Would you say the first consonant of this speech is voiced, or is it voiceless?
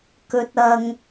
voiceless